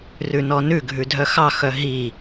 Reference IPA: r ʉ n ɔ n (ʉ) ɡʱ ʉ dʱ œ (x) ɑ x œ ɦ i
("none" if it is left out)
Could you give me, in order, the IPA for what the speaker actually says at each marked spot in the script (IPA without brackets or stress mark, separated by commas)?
ʉ, x